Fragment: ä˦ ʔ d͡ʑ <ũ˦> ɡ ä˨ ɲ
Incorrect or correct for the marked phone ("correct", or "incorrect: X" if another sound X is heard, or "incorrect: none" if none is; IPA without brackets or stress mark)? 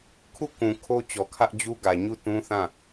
incorrect: u˦